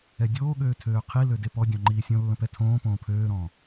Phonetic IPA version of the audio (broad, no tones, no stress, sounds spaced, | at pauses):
ɛ dʲ oː ɠ øː tʰ øː qʰ i l ø d e p ɔ dʲ ɔ̃ ŋ͡ǃ iː sʲ õ lː ə̃ p ɛ tʰ õː p õː pʰ øː ɾ ɔ̃ː